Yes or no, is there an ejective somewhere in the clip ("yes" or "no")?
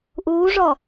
no